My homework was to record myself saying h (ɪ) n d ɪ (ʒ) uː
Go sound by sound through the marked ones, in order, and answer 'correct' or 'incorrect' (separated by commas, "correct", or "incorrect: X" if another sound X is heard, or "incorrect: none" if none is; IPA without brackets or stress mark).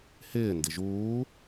incorrect: ɪː, correct